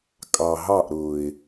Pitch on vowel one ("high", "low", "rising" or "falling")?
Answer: low